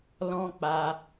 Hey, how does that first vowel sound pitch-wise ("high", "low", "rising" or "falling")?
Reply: high